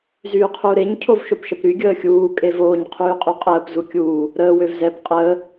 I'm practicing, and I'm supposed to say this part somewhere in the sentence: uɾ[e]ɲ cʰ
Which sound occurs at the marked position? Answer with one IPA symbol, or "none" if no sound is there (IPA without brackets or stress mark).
e